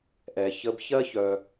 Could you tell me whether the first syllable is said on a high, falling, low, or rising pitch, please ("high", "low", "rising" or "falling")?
low